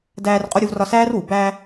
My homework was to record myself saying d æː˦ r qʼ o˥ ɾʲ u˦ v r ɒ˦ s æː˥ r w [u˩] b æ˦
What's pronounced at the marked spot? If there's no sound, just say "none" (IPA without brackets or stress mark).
u˩